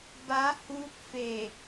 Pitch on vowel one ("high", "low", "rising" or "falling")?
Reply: rising